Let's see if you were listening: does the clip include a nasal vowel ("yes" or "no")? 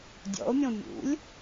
yes